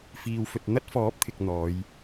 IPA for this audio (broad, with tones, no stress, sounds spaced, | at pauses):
f iː˧ w f ɵ˧ t̚ n̪ ɐ˥ t̚ f ɔː˨˥ p̚ t̪ʰ ɪ˨ k̚ n̪ ɔː˨˧ j